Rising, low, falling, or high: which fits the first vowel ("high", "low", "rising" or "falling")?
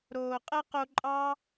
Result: low